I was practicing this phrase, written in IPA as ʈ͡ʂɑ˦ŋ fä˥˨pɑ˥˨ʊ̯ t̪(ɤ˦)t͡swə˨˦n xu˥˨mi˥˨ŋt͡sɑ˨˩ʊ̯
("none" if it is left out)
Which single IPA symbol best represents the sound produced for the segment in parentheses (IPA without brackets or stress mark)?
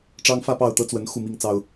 ɤ˦